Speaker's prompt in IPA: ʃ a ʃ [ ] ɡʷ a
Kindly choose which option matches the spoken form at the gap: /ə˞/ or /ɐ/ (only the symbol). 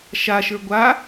ə˞